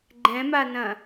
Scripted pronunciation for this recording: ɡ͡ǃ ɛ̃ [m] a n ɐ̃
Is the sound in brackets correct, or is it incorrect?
correct